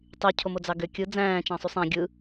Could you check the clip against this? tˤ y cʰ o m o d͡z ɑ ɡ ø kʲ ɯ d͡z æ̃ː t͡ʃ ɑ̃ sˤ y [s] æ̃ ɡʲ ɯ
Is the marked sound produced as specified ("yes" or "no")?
no